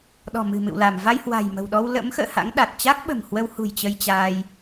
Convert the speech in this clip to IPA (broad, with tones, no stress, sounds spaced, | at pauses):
ɗ ɔ̤˨˩ m ɨ̤˨˩ m ɨ̰˧˨ w l a˧˩ m v a˧ j h w a̤˨˩ j m ə̤˨˩ w ɗ ɔ˧ w l ə̰˧˥ m x ə̰ː˧˨ h a̰˧˥ ŋ ɗ a˨˩ t̚ t͡ɕ a˦˥ k̚ ɓ ə̤˨˩ m h w ə˧ w h ṳ˨˩ j t͡ɕ ə˧ j t͡ɕ aː˧ j